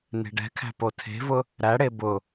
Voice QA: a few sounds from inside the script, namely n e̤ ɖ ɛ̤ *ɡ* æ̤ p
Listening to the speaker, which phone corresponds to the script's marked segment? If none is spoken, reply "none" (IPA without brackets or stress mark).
kʰ